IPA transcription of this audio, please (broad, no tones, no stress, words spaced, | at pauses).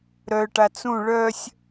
ɾœʈa t͡sũ ɭœsʲ